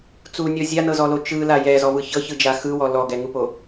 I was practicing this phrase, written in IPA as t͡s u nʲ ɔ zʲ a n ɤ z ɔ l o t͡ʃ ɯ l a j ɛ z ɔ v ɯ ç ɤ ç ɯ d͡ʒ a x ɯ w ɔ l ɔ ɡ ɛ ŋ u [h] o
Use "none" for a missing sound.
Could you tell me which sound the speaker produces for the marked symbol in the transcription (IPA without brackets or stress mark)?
p